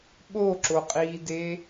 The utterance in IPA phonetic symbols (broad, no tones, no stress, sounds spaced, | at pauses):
ɓ o ǁ o qʼ iː d e